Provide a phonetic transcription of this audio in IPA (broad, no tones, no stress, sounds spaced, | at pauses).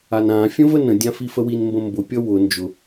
a n ã fʲ ə̃ v ə n ə̃ dʲ ã f i f ə w i n m b ə̃ m b ʊ pʲ ʌ w ʊ n d͡ʒ ʊ